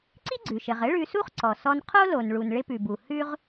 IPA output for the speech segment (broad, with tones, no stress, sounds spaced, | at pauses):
ǀ i˥ ɡ͡ǀ ʉ˩ ʃ ɘ˩ ʁ ɘ˥ ɭ ʉ˧ s u˥ χ ǀ ɔ˩ s ɔ˧ n qʰ o˥ l o˩ n ɭ u˩ n ɭ ɪ˧ p ʉ˩ b u˩ h ʉ˧ ʁ